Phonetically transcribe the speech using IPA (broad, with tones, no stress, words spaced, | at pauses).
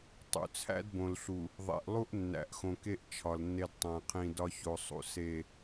tˤṵ˨t͡sʰæ̰˦d bõ˨lɬu˨ | ðˤḛ˨ʔlˠu˦ʔ nːæ̰˨ʔxõ˨ke˦ʔ t͡ʃʰɒ˨lnːe˦d tˤæ̃˨qʰĩ˨ dɒ˦ço˨sˤṵ˨ se˨